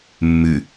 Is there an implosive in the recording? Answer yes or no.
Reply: no